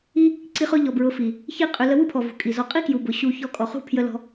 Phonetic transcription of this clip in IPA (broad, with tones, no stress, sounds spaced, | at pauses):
i˦ | ǀ i˧ χ ʊ˧ ʎ ɔ˨ b ɹ ʊ˨˦ f i˨ | ç i˦ qʼ ʏ˧ l ə˧ w u˦ pʰ ɔ˨ v ṳ˨ kʼ i˨ z ɔ˧ qʼ i˦ k j u˨ b ʊ˨ ɕ u˧ ç ɔ˧ kʼ ɔ˨ χ ṳ˦˨ pʰ j ə˧ l ɔ̤˧